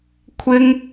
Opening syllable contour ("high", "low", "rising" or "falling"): high